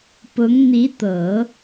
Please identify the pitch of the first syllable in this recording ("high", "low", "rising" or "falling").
rising